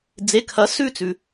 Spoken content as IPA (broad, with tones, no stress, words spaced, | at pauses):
d͡ze˩˧˩kʰɐ˩˥sʉ˦˨ t͡sʉ˩